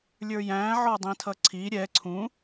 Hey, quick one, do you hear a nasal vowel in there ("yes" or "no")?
yes